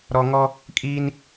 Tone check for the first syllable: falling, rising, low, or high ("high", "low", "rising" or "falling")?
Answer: low